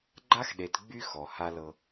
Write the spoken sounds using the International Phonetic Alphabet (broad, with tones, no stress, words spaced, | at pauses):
ɡ͡ǃa˦xɗe˨t ɡ͡by˦ xɔ˨ha˦lɤ˦